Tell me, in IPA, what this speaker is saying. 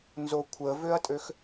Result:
n z o kʷʰ ə v ø ɐ̯ tʼ ø x

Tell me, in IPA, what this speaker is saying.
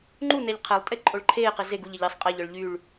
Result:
ŋ͡ǃ u n ɛ ʎ qʰ ɛ lˠ tʼ e ǃʼ o ɭ ǃʰ eː q e z e ɡ u ʎ ɛ ʎ i sˤ qʼ ɛ ʎ œ ɭ ʎ y ɭ

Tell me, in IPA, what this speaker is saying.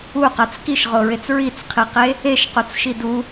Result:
u q a t͡s k i ʃ ʁ o ɹ e t͡s ɹ i t͡s qʰ i q e | e ʃ q o t͡s ʃ i d u

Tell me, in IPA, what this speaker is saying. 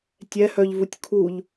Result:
tʲ ɛ h œ ʎ v u tʲ kʰ u ʎ

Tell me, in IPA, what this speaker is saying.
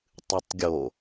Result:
tˤ ɨ tˤ ɡʲ o

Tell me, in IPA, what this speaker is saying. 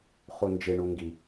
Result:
χ u n d͡ʒ ɪ ɳ u ŋ ɡ i

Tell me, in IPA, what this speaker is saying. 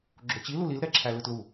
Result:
ɡ͡ǁ o t͡ɕ i l u l i l ɾ ɛ ǁʰ æ l ɯ t l u

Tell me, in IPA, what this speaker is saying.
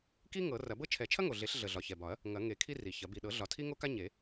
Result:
k i˥ ŋ ɤ˨˩˦ r ɐ˨˩˦ b ɤ˥ t͡ʃʰ ɛ˨˩˦ t͡ʃʰ ɐ˥ ŋ o˨˩ ɮ e˨˩˦ ɬ ɮ ə˨˩ ɮ ɒ˨˩ ç ɛ˨˩ b ɒ˨˩˦ ɐ̯ | ŋ ɐ˨˩˦ ŋ e˨˩˦ kʰ i˥ r i˨˩ ç ɐ˨˩˦ b i˨˩ ɗ ɤ˨˩˦ ɮ ɒ˨˩ tʰ i˥ ŋ o˥ k a˥ ɲ e˨˩˦

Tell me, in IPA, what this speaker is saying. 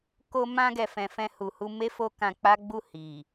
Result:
k o˧ m ã˧ ɡ ɛ˨ f ɛ̃˨ f ɛ̃˧ h u˨ h u˧ m e˦ f o˦ k ã˧ k͡p a˦ ɡ͡b u˦˨ h i˨

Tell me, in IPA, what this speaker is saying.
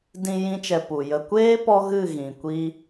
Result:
d ĩ˧ j ĩ˦ t͡ʃ ɛ˧ p u˨ j ə˨ kʷ eː˦ p ɔ˦ ɣ ɨ˦˨ ɣ ĩ˨ kʷ i˦

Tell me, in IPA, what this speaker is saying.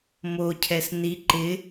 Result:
m o cʰ ɛ s n i ǃ ɪ

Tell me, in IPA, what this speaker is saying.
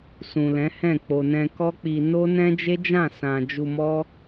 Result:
s ũ˨ l ɛ̃˨˦ h ɛ̃˦˨ k͡p o˨ n ɛ̃˧ k ɔ˦ k͡p i˧ n o˦ n ɛ̃˦ d͡ʒ e˦ d͡ʒ ã˦˨ s ã˨ d͡ʒ u˧ m ɔ˦

